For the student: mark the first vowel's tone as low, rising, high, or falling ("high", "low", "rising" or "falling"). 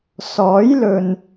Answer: rising